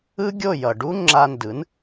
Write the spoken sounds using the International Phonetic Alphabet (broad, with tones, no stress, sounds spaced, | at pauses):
ɯ˥ ɡʲ o˥˩ j ʌ˩ ɖ u˥ ŋ͡ǁ a˧ n d ɯ˩˥ n